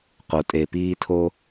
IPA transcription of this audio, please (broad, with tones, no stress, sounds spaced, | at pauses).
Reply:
q o˩ tʼ e˩ p iː˦ tʰ o˦